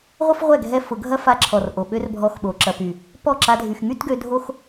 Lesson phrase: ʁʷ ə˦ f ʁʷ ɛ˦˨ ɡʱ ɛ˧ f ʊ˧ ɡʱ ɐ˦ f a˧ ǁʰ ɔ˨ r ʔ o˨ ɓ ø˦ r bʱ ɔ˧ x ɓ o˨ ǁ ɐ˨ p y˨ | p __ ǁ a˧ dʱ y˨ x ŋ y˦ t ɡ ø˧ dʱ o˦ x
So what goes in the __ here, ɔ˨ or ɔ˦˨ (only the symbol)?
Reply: ɔ˦˨